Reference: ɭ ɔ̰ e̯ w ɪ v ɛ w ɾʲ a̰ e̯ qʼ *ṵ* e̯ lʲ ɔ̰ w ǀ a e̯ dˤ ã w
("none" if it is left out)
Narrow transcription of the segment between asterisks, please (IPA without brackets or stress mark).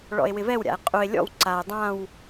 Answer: u